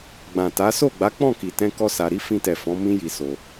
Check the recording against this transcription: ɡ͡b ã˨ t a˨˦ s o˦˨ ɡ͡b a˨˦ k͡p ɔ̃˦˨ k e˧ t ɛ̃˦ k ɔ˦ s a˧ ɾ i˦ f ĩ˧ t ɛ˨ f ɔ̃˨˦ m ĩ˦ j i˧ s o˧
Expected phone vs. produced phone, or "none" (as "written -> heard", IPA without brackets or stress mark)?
e˧ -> i˧